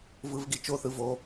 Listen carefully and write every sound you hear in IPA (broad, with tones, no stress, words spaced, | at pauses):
vɯ˧˥˧vɡi˥˨ t͡ʃo˥˨ θɯ˧˥˧vo˧˥˧